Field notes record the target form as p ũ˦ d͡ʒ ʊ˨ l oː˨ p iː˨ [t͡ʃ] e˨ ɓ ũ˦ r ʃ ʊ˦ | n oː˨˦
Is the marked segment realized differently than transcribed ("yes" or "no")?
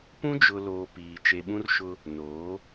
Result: no